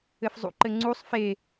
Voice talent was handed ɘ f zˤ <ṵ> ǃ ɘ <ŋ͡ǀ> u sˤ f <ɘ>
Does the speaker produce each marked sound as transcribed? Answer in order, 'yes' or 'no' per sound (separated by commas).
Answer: yes, yes, no